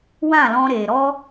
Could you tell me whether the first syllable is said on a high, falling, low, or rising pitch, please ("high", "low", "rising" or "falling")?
falling